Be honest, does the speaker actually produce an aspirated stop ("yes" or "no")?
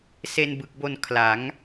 yes